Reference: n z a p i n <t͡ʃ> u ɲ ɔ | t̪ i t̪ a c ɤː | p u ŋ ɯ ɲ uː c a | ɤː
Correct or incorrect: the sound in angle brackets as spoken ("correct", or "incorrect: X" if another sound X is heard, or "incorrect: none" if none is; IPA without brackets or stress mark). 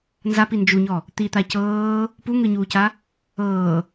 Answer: incorrect: d͡ʒ